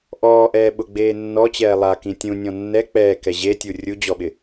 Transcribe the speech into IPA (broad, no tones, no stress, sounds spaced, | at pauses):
ʔ ɔː ʔ ɛː ɓ ʊ ɡ͡b eː nː ɔ t͡ɕ ɛː lˠ a k ĩ tʲ ũ nʲ ɔ̃ nː ɛ k͡p ɛː k ɛ ʑ e tʲ u rʲ u d͡ʑ ɔ ɓ ɪ